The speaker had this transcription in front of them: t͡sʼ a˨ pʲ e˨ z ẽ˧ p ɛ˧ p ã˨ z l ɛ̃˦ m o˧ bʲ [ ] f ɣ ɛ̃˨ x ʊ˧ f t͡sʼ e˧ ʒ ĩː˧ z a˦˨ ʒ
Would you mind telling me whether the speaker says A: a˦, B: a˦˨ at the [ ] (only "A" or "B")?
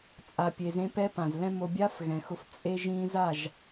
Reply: A